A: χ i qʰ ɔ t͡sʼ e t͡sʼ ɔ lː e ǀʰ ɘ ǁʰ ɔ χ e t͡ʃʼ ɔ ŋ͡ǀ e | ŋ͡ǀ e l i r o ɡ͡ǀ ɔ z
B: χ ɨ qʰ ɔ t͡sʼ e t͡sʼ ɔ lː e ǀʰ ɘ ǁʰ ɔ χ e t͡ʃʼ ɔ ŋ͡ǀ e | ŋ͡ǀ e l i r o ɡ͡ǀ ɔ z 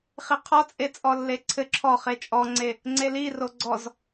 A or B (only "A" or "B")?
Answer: A